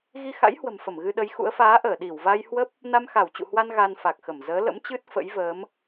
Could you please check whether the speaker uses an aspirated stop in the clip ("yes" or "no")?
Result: no